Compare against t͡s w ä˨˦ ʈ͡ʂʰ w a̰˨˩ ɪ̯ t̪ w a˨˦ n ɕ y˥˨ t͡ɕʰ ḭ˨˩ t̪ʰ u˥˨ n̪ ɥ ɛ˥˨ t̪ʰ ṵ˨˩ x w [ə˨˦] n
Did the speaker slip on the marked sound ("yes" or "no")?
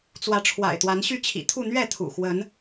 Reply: no